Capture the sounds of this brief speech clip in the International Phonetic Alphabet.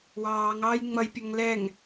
wɑːŋɑːj ŋ͡mʌjpʲʌŋ lɛŋ

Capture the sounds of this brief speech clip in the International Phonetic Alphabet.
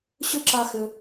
ɕʏ˥ ǁa˥xʏ˦

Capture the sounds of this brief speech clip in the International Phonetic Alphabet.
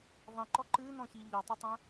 ðˤĩǃɔ ǃɨnɔ̃çi ʎɔtˤɘtˤɛ̃

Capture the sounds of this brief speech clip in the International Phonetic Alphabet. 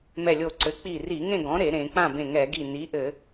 mɛ˧˩lʲo˧˩ǀɘ˩˥ k͡pi˧˩ri˧˩˧ŋẽ˥˨ɡɔ̃˩˥ ɾe˧˩˧ɾẽ˧˩˧ k͡pã˥˨bẽ˧˩ŋɛ˧˩˧ɡi˧˩ ni˩˥ʔɘ˧˩˧

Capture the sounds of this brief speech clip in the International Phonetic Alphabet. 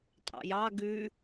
tʼɑ̰jɑ ɡʉ

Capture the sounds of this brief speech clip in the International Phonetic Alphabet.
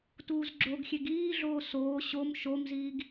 tuːzɡ͡ǁoɡxʲeɡ iːɮoː soː ɕom ʃomziːɡ

